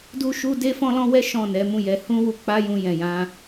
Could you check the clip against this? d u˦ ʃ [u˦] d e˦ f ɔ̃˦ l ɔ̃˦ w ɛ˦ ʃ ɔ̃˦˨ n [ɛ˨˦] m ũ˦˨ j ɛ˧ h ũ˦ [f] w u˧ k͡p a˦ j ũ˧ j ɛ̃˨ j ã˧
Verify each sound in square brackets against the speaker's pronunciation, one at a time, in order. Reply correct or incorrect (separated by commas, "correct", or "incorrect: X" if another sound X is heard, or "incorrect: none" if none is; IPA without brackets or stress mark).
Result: correct, correct, incorrect: none